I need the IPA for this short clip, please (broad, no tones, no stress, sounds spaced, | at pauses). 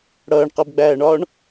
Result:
ɽ ʌː ɳ q ɜ b ɡ͡b æː ɳ ɒː ɳ